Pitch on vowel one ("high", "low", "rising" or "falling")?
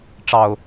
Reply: low